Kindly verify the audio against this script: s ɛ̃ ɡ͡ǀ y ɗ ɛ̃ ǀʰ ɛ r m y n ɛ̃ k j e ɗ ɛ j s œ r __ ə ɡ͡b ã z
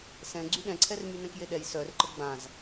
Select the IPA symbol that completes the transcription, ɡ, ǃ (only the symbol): ǃ